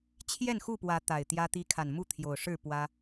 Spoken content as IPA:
t͡ɕʰ j ɛ˥˨ n x u˥˨ p w ä˨˦ t̪ a˨˩ ɪ̯ t̪ j ä˦ t̪ i˦ kʰ a˨ n m u˥˨ t̪ʰ j o˨˩ ʊ̯ ʂ ɻ̩˥˨ p w ä˦

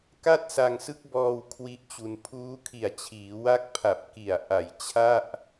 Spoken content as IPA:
k a˥˩ t̚ s a˧ ŋ s ɯ˦˥ k̚ b ɔː˧ w kʰ w i˦˥ ʔ t͡ɕ u˧ n pʰ uː˦˥ kʰ i˨˩ a̯ t͡ɕʰ iː˩˦ w a˦˥ k̚ pʰ a˨˩ p̚ k i˨˩ a̯ ʔ a˨˩ j t͡ɕʰ a˥˩ ʔ

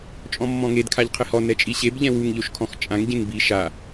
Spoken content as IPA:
t͡ʃʼ ɔ̃ mː ɔ̃ ŋ e d kʰ a ʎ qʰ ɪ h ɔ n ɛ t͡ʃʼ i ɕ e b ʎ ɛ̃ w u ŋ ʎ o ʃ kʰ ɔ̃ x t͡ʃʼ ã ŋ ɟ ẽ ŋ b i ʃ a

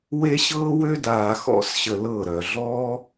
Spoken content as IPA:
w e˦ ɕ ɤː˦ w ø˦ d aː˨ x ɔ̰˦ s ɕ ə˨ l ɤ˦˨ ɾ œ˨ ɮ ɔː˦

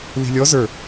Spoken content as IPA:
l i̤ lʲ ɔ z ə˞

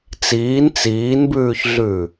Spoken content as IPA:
t͡s iː n t͡s iː n b ʉː ç ɮ ʉ

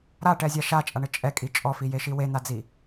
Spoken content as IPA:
ɾ a ʈ ɛ zʲ a ʃ a t͡ʃʼ a ɳ ɘ t͡ʃʼ ɛ kʼ i t͡ʃʼ ɔ f i j e ʃ i w e n̪ a d͡z i

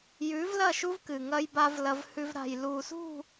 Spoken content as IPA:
j ʉː˨˦ v l ɐ˦˨ ʃ u˦ v k ɨ˨ ŋ ɐ˦ j b a˦ v l ɐ˦ v h ʉ˦ v ɾ a̤˨ j l uː˨ s ṳ˦˨

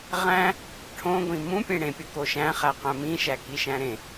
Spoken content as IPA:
ʁ æ̃ | ʈʰ õ ɡʷ ĩ m ũ pʲ ẽ ɽ ẽ pʲ o k o ʃ æ̃ χ æ q æ̃ m ĩ ʃ æ k i ʃ æ̃ ɾ ẽ

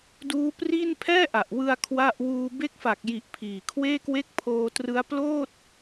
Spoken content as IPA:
d uː˦˥ p r i˥˩ n pʰ ɛː˥˩ ʔ a˨˩ ʔ w ɯ˧ a̯ kʰ w a˥˩ ʔ w uː˧ b e˦˥ k̚ f a˨˩ k̚ j i˨˩ ʔ pʰ iː˨˩ kʰ w eː˥˩ k w e˥˩ k̚ pʰ oː˧ t r ɯ˦˥ a̯ p l oː˥˩ t̚

